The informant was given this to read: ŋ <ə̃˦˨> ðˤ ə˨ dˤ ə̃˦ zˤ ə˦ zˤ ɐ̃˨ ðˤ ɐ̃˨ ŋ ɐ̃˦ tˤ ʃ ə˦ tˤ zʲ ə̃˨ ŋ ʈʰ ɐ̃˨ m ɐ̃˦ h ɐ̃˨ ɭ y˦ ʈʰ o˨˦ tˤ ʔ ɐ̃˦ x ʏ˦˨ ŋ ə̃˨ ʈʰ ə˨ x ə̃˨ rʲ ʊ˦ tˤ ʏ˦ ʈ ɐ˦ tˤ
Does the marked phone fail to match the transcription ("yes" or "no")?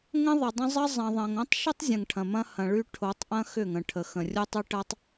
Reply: yes